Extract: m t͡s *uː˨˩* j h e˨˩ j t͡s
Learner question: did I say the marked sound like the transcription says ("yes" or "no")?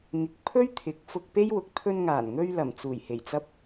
yes